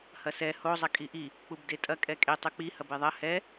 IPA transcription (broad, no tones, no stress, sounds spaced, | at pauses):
h ɐ s ɛ h o zˤ ɐ kʼ i ʔ i | k͡p u b d e tʼ ɐ kʼ ɛ kʼ e tˤ u k͡p i h ɐ b e ðˤ ɐ h ɛ